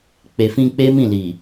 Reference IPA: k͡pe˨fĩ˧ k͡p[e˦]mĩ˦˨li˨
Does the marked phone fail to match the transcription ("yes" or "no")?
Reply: no